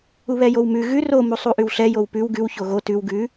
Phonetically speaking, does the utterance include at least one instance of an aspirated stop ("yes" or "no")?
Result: no